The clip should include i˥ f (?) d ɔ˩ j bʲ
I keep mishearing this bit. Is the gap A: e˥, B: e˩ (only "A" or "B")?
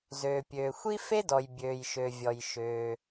A